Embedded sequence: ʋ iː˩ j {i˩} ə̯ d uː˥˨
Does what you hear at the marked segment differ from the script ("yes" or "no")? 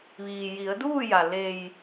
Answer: yes